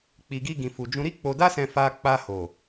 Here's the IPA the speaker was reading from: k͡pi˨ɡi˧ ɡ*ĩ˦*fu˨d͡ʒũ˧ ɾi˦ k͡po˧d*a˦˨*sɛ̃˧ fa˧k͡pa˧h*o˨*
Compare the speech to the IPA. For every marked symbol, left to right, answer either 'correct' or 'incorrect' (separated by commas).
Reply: incorrect, incorrect, correct